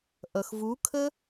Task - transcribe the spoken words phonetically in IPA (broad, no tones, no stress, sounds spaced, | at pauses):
ʔ ʌ x v u kʰ ə